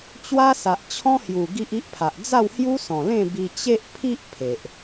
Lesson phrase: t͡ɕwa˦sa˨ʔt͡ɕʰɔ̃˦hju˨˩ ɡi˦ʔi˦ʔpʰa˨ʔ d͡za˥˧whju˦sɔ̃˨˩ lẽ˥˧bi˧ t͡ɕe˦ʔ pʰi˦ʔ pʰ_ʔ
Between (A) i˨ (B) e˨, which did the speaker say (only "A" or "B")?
B